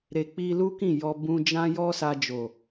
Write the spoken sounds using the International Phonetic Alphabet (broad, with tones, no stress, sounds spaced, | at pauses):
ɾ e˨ k͡p i˧ l u˦ k ĩ˦˨ j ɔ˧ b ũ˧ d͡ʒ ã˦ j ɔ˦ s a˧ d͡ʒ o˨